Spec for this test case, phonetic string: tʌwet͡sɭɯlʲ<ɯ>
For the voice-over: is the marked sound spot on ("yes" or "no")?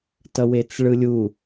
no